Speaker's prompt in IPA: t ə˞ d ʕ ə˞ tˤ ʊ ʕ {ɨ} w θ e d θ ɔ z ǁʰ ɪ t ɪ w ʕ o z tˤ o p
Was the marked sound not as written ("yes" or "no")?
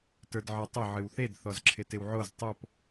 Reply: no